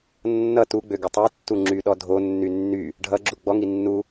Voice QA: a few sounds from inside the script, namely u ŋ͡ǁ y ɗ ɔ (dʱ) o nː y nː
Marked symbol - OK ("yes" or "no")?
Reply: yes